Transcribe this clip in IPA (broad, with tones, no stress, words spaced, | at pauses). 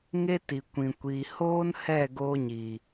ŋe˦ti˨kʷĩ˨ kʷiː˨hoː˦nhɛ˦˨ ɡoː˧ɲi˨